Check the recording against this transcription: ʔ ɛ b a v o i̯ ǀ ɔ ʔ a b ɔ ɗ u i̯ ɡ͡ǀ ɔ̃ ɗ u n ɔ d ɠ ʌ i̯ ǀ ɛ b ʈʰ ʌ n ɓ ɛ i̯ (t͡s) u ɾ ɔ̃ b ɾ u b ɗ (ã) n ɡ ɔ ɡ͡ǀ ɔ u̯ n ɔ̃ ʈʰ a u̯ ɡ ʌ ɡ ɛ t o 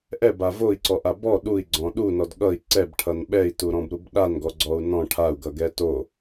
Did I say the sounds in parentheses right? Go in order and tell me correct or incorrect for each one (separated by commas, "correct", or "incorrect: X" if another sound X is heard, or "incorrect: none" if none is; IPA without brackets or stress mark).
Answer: incorrect: t, incorrect: a